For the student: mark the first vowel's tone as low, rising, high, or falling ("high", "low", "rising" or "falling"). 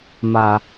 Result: high